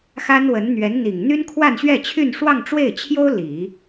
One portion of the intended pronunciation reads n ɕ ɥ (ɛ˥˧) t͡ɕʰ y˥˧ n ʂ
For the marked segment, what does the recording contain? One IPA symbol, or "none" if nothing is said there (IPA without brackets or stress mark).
ɛ˥˧